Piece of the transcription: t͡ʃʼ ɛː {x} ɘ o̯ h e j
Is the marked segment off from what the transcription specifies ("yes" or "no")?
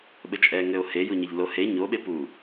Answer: yes